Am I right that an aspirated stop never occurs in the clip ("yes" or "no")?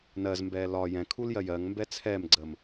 no